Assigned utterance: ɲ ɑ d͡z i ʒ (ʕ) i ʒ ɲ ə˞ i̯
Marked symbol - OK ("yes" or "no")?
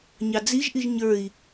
no